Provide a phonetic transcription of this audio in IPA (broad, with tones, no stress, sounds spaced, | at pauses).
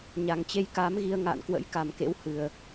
ɲ a˨˩ ŋ t͡ɕ e˧ j k aː˨˦ m ɣ i˧ ə̯ ŋ a̰ː˧˨ n k w ə̰˧˥ j k a˨˩ m k ḛ˧˥ w h ɨ˨˩ ə̯